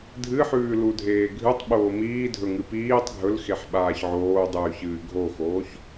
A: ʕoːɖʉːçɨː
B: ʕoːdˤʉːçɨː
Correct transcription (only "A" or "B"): B